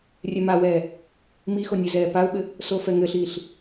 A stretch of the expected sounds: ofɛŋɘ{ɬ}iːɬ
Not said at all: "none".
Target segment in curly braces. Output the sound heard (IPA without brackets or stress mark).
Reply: ɬ